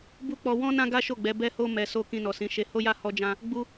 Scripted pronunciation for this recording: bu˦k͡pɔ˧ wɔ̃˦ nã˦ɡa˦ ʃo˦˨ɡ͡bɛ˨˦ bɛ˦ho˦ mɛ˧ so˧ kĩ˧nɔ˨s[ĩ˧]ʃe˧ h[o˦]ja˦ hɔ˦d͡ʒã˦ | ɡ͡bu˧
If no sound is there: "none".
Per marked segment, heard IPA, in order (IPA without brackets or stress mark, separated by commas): ĩ˨˦, o˦